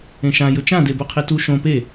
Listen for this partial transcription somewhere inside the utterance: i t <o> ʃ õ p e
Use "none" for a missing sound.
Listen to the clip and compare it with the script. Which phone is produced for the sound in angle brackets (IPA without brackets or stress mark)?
u